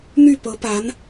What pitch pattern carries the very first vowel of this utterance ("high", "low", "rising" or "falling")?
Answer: falling